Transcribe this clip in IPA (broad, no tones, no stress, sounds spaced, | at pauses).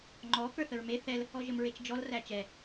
ŋ͡ǃ ɔ k ə˞ θ ə ɹ m e θ ɛ l | ɔ ʒ ə m ɹ e t͡ʃ d͡ʒ ɔ l r æ t͡ʃ ɛ